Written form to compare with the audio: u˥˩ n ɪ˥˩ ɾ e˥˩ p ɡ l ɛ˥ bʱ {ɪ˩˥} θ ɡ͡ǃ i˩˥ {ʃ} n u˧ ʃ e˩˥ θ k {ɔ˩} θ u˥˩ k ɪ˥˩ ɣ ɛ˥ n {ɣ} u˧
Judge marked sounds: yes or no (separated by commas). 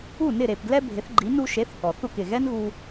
yes, no, yes, yes